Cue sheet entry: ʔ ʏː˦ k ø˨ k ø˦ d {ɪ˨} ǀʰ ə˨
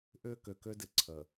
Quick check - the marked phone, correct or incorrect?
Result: correct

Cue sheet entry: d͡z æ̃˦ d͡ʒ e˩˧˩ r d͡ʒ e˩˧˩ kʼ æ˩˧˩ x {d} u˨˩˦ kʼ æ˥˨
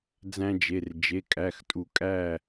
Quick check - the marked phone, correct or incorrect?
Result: incorrect: tʼ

